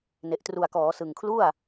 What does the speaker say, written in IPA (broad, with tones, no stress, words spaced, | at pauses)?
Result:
ne˨˩ʔtru˨˩a̯kɔː˩˦sɯ˨˩ŋ kʰlu˥˩a̯